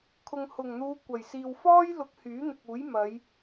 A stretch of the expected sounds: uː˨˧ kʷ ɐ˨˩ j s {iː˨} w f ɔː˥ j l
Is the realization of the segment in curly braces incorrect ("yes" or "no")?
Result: no